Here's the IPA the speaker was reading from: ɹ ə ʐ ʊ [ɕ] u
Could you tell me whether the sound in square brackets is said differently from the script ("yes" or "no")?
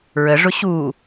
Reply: no